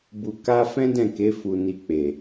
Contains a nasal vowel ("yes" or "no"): yes